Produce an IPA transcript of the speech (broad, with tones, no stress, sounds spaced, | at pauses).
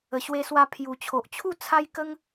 ə˨˩ ɕ w e˧ s w a˧ pʰ j u˨˩ t͡ɕʰ o˨ ʔ t͡ɕʰ u˥˧ t͡sʰ a˦ j k ə˦ ŋ